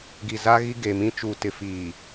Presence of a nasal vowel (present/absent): present